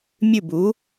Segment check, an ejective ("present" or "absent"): absent